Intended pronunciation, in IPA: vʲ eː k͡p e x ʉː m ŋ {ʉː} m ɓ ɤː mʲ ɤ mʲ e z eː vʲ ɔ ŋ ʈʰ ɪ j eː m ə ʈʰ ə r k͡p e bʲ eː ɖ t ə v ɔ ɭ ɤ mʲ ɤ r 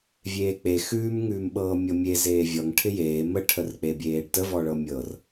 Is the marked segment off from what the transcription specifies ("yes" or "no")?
no